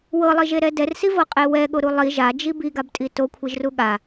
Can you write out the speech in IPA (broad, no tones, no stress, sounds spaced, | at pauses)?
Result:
w ɤ lˠ i ʒ e ɾ ɛ d ɛ r s i v ɤ qʼ e w ɛ ɠ o ɾ u lˠ i ʒ a d͡ʒ i b i ɡ a b tʼ i t o kʷʰ i ʒ r u ɠ a